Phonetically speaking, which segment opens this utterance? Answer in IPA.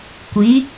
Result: kʷ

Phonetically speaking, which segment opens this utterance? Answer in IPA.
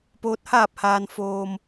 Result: p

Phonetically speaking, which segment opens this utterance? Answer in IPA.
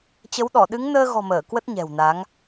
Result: t͡ɕ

